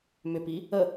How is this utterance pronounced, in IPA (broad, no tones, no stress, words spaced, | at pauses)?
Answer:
mʏpi | ə